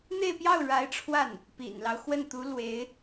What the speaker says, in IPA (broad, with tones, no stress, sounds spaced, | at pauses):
n̪ e˥˧ ɪ̯ p j ɑ˥˩ ʊ̯ ɻ a˧˥ ɪ̯ ʈ͡ʂʰ w a˥˩ n | p ḭ˨˩ n l ɑ˦ ʊ̯ x w ə˥˩ n t̪ u˧˥ l w e˧˥ ɪ̯